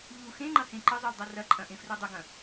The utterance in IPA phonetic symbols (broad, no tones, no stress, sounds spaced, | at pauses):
ʎ u x ẽ ŋ͡ǃ ɐ h ẽ ǃ ə zˤ u lˠ dˤ ɐ r ɐ ǃʼ ɐ̃ ʔ ẽ f r u dˤ ə ɡ ɐ̃